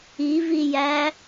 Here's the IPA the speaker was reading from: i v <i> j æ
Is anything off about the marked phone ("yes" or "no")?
no